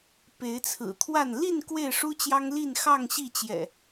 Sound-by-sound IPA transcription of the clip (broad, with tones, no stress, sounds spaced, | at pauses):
p e˨˦ ɪ̯ t͡sʰ ɹ̩˨˩ t̪ʰ w a˥˨ n l i˥˨ n k w e˥˨ ɪ̯ ʂ u˦ t͡ɕ j ɑ˦ ŋ l i˥˨ n x ɑ˥˨ ŋ ɕ i˥˨ t͡ɕ j ɛ̰˨˩